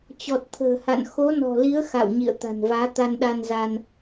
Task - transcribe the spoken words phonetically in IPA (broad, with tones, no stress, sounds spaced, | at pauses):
t͡ɕ ɔ˨˩ t̚ t̪ʰ ə̤ː˨˩ h a̰˧˨ n x o˨˦ n ɔ̤˨˩ l i˨˦ ə̯ x a̰˧˨ w ɲ ḭ˧˨ ə̯ t̪ a̤˨˩ n v aː˨˦ t̪ a˧ n ɗ a˧ n z a˧ n